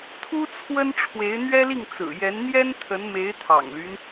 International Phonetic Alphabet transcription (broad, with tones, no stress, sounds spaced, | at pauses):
t̪ʰ u˥ t͡sʰ w ə˥ n ʈ͡ʂʰ w e˧˥ ɪ̯ n̪ ɥ ɛ˥ l i˥˩ ŋ t͡s ɹ̩˨˩ j ɛ˧˥ n n̪ j ɛ˥ n t̪ʰ ə˧˥ n m e˧˥ ɪ̯ t̪ʰ ɑ̰˨˩ ŋ l y˦ n